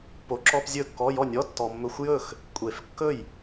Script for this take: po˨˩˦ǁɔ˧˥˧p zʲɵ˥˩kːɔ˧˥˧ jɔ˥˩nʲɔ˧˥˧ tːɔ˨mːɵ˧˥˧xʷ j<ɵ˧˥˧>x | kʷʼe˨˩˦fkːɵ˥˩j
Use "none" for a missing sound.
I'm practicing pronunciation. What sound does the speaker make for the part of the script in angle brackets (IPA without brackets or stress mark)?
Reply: ɵ˥˩